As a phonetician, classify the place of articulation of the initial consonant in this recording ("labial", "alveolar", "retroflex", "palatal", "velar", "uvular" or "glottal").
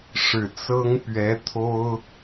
retroflex